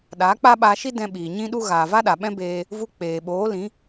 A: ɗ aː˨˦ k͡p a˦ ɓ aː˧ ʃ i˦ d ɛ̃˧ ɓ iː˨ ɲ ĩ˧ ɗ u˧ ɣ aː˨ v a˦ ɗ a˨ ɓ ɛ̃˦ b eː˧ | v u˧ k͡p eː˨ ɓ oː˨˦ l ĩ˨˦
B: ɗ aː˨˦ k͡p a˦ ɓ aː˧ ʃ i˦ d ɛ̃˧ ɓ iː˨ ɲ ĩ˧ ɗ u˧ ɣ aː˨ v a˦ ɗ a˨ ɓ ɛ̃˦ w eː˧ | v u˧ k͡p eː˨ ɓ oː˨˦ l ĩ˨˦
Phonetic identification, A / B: A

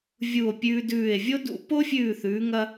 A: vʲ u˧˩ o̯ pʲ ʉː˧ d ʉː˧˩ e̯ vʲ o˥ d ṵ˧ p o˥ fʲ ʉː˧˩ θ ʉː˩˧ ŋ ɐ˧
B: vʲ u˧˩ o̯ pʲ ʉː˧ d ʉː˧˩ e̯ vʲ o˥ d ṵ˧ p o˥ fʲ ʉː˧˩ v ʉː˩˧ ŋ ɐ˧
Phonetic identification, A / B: A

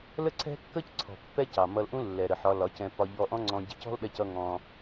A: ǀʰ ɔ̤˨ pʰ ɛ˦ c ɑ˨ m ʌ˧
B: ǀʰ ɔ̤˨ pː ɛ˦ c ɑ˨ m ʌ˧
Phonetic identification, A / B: B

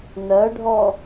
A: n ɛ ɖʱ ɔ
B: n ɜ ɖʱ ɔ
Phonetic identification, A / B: B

